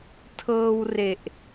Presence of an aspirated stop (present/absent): present